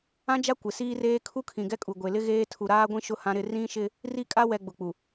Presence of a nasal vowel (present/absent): present